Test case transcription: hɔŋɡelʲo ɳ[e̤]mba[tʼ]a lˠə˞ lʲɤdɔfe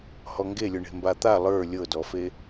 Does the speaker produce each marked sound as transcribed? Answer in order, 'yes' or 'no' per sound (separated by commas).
yes, no